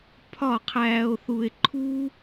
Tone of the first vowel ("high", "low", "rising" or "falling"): falling